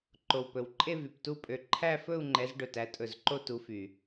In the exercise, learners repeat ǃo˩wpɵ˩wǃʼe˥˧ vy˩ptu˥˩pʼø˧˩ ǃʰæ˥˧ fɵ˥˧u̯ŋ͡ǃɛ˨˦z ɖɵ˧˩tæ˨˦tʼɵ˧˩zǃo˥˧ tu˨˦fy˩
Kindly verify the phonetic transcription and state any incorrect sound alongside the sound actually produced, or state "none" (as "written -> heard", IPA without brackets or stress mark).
none